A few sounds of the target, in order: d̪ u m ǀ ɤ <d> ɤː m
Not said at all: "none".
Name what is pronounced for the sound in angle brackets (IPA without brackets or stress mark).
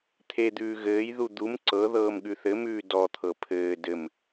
ð